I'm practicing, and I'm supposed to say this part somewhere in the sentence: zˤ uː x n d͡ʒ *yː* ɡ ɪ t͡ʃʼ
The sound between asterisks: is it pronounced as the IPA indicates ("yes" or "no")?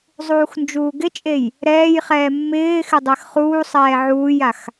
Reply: no